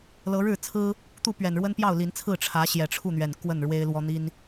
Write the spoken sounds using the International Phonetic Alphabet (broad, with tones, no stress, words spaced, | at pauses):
lɤ˨˦ɻɻ̩˥˨t͡sʰɹ̩˦ | t̪u˥˨pɥɛ˨˩nɻwə˦n pjɑ˥˨ʊ̯li˨˦nt͡sʰɹ̩˥˨ ʈ͡ʂʰä˨˦ ɕjɛ˨˩ʈ͡ʂʰu˥˨n̪ɥɛ˨˩n kwə˥˨nɻwe˦ɪ̯ lwɔ˦n̪i˦n